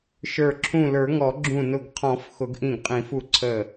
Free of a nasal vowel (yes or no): no